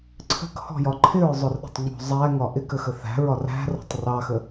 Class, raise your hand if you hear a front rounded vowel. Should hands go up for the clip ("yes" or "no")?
no